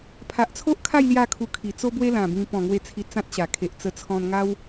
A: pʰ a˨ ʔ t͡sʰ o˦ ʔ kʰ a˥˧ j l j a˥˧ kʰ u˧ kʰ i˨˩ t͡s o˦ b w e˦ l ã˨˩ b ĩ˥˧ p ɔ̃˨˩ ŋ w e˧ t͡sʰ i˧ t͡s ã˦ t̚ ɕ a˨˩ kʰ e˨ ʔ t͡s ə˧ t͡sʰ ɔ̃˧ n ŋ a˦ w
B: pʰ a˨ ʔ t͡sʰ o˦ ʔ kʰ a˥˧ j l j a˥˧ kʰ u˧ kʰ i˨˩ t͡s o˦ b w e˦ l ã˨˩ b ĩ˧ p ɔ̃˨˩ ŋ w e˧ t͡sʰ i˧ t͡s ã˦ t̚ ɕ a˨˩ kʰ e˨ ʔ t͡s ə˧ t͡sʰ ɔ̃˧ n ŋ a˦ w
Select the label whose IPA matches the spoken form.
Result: B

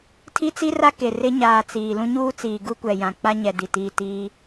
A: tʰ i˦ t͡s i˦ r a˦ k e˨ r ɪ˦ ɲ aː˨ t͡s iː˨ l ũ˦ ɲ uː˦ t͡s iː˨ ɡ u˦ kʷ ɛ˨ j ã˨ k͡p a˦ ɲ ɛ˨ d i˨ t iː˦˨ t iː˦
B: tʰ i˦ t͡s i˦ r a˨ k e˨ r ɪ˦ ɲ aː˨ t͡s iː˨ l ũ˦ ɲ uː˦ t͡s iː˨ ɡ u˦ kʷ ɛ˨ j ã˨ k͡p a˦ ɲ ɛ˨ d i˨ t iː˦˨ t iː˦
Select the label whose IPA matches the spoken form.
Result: A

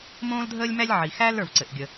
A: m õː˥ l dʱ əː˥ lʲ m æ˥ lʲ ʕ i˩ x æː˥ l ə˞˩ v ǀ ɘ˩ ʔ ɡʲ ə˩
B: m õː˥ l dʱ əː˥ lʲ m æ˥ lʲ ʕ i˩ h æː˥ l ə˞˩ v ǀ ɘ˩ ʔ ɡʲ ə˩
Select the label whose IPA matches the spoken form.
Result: A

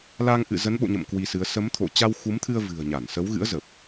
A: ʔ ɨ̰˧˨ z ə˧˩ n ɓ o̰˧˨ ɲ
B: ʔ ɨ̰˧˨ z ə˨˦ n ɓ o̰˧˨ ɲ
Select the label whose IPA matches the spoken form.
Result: B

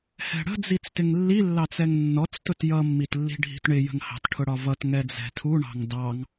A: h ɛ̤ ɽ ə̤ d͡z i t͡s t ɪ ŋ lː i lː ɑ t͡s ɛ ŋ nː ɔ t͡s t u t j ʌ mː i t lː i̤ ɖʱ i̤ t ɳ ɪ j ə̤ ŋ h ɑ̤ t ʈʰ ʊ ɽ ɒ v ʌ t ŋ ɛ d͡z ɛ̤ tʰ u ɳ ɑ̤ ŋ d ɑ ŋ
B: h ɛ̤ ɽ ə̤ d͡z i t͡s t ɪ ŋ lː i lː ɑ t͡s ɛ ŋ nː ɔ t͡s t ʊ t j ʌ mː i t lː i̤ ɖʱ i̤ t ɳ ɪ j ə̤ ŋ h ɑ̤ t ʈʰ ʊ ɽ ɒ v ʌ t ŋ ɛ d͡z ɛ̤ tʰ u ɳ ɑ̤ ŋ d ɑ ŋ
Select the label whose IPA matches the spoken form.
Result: B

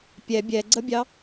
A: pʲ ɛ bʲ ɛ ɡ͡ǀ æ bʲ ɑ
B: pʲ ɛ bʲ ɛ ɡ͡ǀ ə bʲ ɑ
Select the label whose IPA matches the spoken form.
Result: B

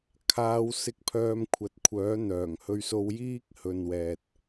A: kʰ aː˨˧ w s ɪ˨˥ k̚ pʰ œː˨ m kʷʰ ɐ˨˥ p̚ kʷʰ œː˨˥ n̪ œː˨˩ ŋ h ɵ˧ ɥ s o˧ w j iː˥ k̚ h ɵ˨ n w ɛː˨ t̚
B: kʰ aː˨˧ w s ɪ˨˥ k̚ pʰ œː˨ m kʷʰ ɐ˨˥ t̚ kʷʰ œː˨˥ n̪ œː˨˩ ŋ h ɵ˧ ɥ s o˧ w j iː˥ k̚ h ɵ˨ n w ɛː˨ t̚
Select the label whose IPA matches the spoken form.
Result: B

